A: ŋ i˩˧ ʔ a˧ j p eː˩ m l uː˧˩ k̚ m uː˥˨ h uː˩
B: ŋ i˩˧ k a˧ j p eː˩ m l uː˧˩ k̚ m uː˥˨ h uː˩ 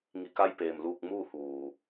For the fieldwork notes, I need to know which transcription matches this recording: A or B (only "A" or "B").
B